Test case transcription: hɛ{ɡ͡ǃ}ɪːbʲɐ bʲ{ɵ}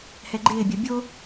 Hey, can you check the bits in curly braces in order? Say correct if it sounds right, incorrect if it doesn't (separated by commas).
correct, incorrect